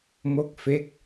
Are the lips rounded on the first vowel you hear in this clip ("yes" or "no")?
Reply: yes